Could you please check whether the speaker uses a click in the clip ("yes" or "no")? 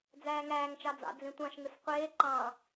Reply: yes